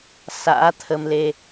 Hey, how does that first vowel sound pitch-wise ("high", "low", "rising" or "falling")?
rising